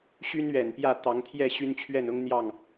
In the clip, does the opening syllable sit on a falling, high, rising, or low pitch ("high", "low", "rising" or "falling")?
high